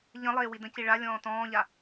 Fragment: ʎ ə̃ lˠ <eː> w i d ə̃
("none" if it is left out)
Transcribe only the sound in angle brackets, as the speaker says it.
eː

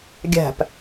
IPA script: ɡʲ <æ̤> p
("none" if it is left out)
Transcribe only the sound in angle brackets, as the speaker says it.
æ̤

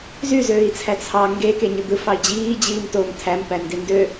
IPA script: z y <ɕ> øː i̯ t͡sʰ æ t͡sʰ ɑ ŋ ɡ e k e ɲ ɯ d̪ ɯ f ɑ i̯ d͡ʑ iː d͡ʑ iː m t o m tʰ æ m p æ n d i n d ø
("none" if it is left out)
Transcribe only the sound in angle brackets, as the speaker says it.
z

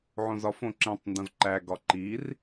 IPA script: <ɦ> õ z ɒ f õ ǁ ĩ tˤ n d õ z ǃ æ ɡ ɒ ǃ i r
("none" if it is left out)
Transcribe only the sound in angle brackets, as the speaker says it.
ʕ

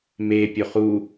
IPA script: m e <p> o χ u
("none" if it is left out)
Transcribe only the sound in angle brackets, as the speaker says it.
pʲ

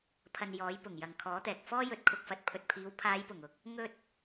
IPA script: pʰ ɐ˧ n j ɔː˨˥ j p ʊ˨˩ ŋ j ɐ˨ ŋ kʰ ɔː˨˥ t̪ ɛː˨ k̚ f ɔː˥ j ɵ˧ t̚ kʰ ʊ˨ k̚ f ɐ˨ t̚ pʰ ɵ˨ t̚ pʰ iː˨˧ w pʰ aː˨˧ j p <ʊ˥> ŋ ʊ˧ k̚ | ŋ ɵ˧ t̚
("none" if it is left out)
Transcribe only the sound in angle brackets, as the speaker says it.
ʊ˨˩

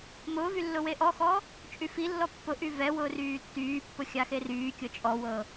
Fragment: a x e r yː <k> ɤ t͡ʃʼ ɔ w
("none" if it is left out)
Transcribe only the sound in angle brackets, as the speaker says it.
kʲ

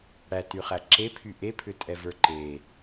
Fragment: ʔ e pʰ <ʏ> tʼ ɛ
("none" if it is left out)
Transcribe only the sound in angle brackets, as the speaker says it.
ʏ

